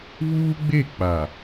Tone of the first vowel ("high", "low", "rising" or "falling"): high